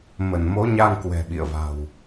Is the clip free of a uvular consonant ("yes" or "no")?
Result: yes